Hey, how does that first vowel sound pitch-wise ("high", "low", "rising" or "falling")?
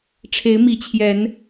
rising